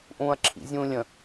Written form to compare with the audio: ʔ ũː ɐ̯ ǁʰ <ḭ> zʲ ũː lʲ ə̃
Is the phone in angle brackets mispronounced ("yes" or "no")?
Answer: no